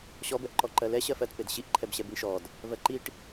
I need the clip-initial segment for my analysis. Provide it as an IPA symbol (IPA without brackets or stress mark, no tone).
ɕ